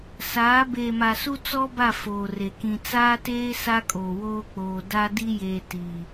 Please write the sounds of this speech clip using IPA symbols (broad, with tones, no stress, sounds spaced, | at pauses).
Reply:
s aː˨˦ b eː˨ m a˨ s u˦ t͡s ɔ˦ b a˦˨ f oː˨ r e˨ k ĩ˨ t͡s aː˦ t eː˦ s a˦ kʼ oː˨ w oː˦ k͡p oː˨ d a˦ d i˦ j eː˨ t i˨